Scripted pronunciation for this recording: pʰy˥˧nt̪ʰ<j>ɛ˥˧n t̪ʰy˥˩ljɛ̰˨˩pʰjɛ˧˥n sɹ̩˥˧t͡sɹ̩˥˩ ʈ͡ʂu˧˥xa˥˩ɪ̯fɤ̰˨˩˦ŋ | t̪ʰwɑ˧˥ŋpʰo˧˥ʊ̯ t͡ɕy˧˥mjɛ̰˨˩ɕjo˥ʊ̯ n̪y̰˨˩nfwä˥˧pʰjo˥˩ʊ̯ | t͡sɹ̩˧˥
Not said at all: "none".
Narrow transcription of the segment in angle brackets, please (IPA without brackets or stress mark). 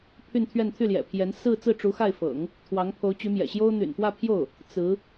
ɥ